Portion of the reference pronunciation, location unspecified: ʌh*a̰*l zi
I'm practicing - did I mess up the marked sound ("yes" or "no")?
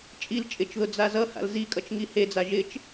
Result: no